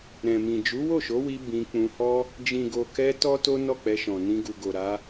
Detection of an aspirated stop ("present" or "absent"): absent